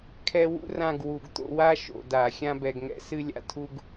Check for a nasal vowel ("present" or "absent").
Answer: present